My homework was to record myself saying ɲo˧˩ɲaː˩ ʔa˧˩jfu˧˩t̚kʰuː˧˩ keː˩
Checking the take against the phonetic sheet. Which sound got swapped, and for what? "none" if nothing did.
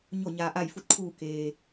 none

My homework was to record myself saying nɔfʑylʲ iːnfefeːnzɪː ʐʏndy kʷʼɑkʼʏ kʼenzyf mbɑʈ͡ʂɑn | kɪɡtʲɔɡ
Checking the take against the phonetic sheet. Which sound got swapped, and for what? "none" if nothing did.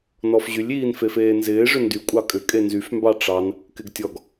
none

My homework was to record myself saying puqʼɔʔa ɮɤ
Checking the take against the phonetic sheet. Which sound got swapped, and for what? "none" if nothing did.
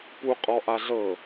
none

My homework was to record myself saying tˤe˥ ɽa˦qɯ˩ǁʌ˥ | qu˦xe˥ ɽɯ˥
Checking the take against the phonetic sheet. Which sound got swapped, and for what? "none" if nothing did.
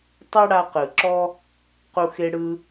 ʌ˥ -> ɔ˥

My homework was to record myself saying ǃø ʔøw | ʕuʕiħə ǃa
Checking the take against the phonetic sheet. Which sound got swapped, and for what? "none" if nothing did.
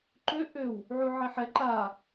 ə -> ɛ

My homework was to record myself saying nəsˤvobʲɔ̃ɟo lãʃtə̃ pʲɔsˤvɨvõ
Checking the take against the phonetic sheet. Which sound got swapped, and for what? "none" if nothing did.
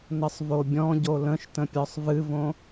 ã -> ə̃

